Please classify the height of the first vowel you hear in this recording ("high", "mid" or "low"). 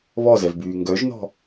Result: mid